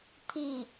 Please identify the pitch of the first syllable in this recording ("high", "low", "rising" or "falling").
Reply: falling